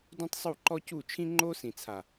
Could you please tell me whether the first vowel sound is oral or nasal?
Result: nasal